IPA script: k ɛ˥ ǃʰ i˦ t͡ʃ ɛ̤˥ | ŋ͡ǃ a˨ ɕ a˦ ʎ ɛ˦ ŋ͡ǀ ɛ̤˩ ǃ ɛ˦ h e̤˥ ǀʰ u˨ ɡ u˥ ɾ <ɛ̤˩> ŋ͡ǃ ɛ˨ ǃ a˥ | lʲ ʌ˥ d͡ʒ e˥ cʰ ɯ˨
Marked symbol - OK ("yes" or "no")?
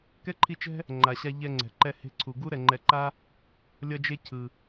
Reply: no